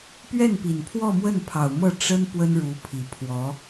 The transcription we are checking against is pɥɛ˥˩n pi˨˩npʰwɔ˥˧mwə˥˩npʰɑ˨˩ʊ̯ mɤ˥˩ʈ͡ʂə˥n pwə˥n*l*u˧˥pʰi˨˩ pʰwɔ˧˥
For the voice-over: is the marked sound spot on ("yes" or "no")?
no